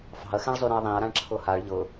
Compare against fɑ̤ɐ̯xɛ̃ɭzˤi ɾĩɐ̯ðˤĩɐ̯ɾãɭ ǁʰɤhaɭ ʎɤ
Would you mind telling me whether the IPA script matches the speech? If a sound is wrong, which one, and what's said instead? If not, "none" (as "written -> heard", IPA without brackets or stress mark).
i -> y